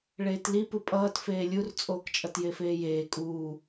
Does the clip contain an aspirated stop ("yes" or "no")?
no